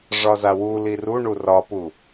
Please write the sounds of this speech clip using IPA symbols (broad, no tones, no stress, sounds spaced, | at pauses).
ʐ ɒ z a w u l i r u ɳ u r ɒ p u